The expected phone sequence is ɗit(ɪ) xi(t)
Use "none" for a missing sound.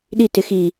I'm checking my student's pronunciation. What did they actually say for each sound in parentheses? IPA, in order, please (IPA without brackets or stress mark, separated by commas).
ɪ, none